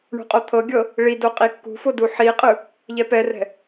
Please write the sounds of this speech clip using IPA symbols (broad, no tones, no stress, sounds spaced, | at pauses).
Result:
ɳ ṳ qʼ o t̪ʰ ɤ ɡʲ ɤ | ɭ i d o qʼ i kː ṳ f o d u ħ i qʼ ɯ | ʎ ɛ p ɛ r ɛ̤